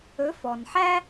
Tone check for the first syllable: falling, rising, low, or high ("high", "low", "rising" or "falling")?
rising